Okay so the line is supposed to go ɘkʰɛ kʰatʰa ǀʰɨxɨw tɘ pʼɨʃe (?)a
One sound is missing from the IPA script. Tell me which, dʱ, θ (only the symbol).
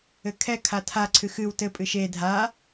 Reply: dʱ